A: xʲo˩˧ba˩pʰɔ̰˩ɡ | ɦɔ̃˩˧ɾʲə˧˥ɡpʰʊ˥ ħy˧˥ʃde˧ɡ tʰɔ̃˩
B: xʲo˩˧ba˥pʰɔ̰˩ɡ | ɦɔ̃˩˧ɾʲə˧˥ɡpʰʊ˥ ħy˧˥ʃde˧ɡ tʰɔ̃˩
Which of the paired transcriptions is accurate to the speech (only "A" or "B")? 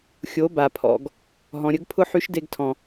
A